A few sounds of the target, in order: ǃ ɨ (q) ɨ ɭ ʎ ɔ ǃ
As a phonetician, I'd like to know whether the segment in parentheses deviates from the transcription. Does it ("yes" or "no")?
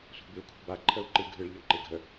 yes